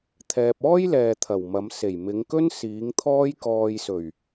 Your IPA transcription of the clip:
t̪ʰ ɛː˨ p̚ ɔː˥ j l ɛː˨ t̪ʰ ɐ˨˩ w m ɐ˨˧ m s e˨˩ j m ɪ˨˧ ŋ k ɵ˥ n s iː˨˧ ŋ t̪ʰ ɔː˧ j k ɔː˨ j s ɵ˨˩ ɥ

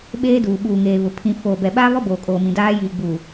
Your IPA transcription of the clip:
ɓ eː˦ d uː˨ ɓ uː˨ ŋ eː˨ β ʊ˨ pʰ ĩ˨ f oː˨ b ɛ˨ ɓ aː˦ β ɔ˦ b oː˨ kʼ oː˨ m ĩ˨ d aː˦ j iː˨ ɡ͡b u˨

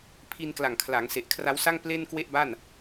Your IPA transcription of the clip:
pʰ i˧ n k l a˨˩ ŋ kʰ l a˩˦ ŋ s e˨˩ ʔ kʰ r a˦˥ w s a˥˩ ŋ p l e˥˩ n k w e˥˩ ʔ b a˥˩ n

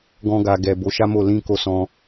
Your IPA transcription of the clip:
ɡ ɔ̃˧ ɡ a˨ ɡ ɛ˨ b o˨˦ ʃ a˦ m o˦˨ l ĩ˧ k o˧ s ɔ̃˧

